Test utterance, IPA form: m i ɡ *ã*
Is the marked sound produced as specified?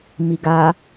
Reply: no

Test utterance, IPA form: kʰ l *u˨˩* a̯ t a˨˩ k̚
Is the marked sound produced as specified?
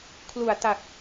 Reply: yes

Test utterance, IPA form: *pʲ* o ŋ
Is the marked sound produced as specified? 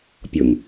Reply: yes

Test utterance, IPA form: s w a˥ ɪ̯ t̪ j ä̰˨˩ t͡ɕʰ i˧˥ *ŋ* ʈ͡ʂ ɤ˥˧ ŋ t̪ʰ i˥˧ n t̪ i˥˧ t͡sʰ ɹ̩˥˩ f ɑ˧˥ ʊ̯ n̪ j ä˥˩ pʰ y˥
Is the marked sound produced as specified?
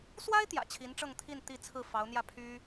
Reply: no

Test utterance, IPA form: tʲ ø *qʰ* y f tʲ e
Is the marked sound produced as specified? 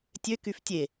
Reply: no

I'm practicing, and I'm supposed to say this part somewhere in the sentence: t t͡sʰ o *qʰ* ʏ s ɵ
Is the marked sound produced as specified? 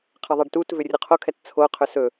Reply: yes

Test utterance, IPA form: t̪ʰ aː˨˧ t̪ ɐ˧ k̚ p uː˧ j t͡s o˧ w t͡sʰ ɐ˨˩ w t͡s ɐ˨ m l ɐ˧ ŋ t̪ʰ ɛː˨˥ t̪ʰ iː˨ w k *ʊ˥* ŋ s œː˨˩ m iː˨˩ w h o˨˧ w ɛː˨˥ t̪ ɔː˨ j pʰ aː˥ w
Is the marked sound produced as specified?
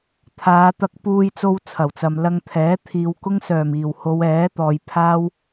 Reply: yes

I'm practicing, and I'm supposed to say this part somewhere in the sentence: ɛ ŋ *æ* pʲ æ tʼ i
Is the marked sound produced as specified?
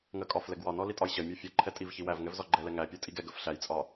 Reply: yes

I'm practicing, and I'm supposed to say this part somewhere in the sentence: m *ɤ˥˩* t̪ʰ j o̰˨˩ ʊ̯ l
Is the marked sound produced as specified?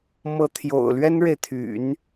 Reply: no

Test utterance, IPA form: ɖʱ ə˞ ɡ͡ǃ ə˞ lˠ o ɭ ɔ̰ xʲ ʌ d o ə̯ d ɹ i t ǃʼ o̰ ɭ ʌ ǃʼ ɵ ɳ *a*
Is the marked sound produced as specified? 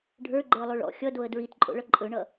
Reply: no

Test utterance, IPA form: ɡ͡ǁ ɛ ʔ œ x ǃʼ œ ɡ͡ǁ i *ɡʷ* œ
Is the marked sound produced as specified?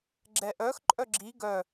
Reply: no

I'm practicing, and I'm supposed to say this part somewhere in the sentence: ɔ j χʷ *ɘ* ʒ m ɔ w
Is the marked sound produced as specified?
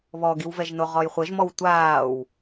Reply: yes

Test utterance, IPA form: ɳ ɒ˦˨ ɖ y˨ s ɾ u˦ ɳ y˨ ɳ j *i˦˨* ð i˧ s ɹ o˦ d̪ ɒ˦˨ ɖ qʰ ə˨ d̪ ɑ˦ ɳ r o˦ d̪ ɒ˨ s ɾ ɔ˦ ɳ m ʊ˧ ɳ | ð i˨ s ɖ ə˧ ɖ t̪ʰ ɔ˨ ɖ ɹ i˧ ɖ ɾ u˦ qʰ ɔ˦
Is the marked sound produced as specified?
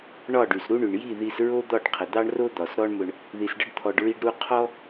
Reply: yes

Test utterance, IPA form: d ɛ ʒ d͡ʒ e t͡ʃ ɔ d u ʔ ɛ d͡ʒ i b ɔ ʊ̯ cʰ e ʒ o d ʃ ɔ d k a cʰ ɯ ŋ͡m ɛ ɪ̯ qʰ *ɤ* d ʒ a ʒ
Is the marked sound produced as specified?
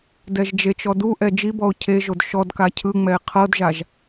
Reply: yes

